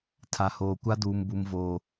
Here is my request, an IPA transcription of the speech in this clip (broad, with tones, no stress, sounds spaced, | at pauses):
tʰ a˨ h oː˨ kʷ a˦ d uː˨ m b u˨ m v oː˨